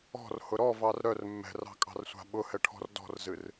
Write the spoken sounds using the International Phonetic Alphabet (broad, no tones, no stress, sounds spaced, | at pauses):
ɔ̤ r h ʊ ɾ ɔ v ɑ r ɾ œ r mː ɛ̤ r ɑ̤ kʼ ɑ̤ r sʷ a̤ ɓ ʊ h ɛ ʈʰ ɔ̤ r d ɔ̤ r z ɨ r